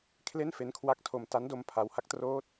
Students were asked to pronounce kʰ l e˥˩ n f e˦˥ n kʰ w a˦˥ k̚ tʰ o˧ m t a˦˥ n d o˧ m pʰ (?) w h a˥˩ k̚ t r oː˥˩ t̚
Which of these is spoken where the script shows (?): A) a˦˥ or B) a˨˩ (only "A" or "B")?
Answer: A